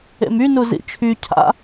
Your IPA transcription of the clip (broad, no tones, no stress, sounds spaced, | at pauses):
ḛ m y n u z ḭ t͡ʃʰ y cʰ a̰